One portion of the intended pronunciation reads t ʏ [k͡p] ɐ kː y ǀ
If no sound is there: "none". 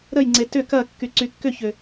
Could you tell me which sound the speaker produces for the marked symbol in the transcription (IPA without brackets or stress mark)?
k